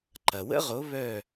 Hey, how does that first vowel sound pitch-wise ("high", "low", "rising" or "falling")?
low